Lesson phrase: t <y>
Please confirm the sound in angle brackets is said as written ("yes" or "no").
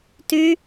yes